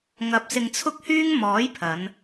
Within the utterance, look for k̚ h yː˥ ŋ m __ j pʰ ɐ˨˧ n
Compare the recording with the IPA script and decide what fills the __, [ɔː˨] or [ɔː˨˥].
ɔː˨˥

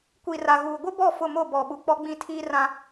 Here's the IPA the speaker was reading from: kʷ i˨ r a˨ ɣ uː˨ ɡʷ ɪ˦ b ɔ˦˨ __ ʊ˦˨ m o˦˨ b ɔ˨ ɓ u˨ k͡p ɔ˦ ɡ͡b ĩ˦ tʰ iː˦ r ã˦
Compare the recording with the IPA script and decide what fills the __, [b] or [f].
f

